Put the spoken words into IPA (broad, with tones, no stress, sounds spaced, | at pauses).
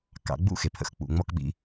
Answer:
k ɑ̰˩˧ ɡ͡b ṵ˥ x e˩ pʰ ə̰˩˧ x k͡p ṵ˩ ŋ͡m ɔ˧ k ɓ ḭ˩